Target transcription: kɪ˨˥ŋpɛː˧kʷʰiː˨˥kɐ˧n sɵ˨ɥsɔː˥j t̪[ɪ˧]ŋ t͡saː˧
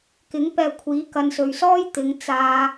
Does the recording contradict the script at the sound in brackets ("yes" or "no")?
yes